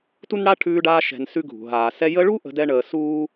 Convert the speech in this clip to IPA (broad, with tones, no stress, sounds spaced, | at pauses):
t u˥ n ɽ a˥ ʈʰ ʉː˦ ɖ aː˦ ʃ ɛ̤˨ n s ʉ˦ ɡʱ ṳ˩ ɦ aː˩ s ɛ˦ j ə˦ ɭ u˥ ʔ ə̤˦ d ɛ˥ ɳ əː˨ s uː˥